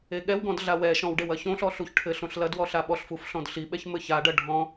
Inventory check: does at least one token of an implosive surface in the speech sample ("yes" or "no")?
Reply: yes